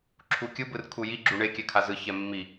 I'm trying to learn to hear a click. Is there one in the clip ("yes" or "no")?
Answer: yes